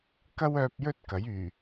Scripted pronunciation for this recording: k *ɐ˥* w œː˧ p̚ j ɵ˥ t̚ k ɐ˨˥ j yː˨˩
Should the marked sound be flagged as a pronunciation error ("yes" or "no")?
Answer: no